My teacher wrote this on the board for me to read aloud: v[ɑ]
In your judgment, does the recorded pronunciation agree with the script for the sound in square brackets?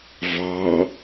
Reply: yes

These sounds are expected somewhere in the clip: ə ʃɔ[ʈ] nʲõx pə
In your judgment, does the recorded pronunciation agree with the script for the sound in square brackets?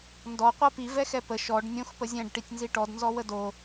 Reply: no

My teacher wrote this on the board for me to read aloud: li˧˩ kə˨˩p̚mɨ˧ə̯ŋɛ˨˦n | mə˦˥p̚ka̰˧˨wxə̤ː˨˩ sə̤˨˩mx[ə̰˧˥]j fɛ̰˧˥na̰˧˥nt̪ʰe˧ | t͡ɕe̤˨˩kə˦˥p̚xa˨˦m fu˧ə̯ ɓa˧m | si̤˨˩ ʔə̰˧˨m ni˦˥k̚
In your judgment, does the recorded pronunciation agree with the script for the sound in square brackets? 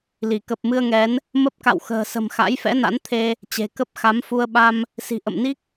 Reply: no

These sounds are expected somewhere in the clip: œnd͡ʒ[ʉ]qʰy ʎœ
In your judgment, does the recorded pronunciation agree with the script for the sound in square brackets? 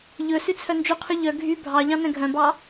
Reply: yes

